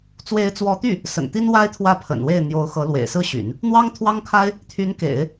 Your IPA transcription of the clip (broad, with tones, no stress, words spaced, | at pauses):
t͡swe˧˥ɪ̯t͡swɔ˧˥t̪y˥˩ | sə̰˨˩nt̪i˥n wa˥ɪ̯t̪ʰwä˥˩ pʰə̰˨˩nwe˥˩ɪ̯ n̪jo˧˥ʊ̯ xɤ˧˥lwḛ˨˩ɪ̯ sɹ̩˥˩ɕy̰˨˩˦n | n̪wɑ˥ŋt̪ʰwɑ˥ŋkʰa˥ɪ̯ | t̪ʰy˧˥nkḛ˨˩˦ɪ̯